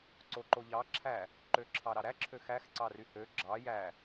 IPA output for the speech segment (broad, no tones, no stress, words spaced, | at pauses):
ǀoǃoʎɑ ǁʰæ | ǃøǁʰɑɾɑɾæ ǁʰøxæx ǀɑryhø ɡ͡ǁɑ jæ